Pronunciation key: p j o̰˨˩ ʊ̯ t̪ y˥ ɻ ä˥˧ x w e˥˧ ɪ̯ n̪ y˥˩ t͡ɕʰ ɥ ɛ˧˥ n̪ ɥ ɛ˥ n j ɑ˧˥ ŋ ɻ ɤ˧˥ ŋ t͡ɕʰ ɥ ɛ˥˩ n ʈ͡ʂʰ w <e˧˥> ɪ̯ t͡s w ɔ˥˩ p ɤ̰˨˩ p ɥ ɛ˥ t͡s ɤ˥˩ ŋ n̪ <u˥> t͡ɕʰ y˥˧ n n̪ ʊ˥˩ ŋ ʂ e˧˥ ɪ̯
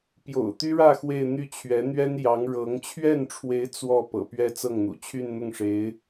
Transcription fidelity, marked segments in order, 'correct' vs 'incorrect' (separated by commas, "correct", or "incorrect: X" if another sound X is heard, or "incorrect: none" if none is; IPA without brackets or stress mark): correct, incorrect: ṵ˨˩